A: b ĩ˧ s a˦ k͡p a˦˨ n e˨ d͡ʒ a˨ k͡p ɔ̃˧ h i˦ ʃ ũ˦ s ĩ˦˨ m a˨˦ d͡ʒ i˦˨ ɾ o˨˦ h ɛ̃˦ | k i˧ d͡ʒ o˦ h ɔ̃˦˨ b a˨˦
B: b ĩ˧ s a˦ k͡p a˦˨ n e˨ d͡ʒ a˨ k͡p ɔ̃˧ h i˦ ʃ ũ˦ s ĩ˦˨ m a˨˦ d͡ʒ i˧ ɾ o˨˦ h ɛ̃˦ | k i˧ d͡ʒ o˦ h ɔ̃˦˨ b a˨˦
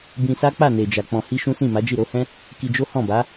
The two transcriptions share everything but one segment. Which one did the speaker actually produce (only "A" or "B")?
A